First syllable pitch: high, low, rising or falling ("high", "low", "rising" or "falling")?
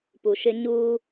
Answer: low